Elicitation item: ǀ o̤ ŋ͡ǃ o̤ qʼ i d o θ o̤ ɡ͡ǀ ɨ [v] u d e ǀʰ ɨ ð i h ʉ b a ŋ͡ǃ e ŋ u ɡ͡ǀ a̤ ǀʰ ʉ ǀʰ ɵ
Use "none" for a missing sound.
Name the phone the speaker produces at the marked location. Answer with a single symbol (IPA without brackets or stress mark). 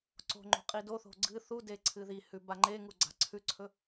θ